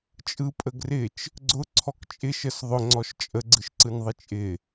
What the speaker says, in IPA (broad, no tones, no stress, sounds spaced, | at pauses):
t͡ʃʼ ɯ pʼ ə ɡ r ɪ t͡ʃ | ɡ͡ǀ ʊ ǀʰ ɔ k t͡ʃʼ ɪ ʃ ə s ðˤ ʊ ŋ͡ǀ ɔ ʃ t͡ʃʼ ə ɡ͡ǀ ɯ ʃ ǀ ɯ n ðˤ ɪ t͡ʃʼ ɪ